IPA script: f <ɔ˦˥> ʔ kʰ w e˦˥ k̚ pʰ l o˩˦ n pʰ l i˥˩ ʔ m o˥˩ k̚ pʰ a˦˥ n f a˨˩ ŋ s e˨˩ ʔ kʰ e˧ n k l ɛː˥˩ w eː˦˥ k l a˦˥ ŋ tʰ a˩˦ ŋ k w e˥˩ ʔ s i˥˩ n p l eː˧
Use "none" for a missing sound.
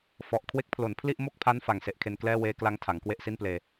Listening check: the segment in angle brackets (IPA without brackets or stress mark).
ɔ˨˩